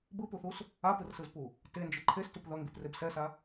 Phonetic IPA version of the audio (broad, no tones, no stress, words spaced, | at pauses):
bɯpuθus | apɯrsɯzpu | tend͡ʒɯ ǃʰestup ðʌŋɡipreb sɛsa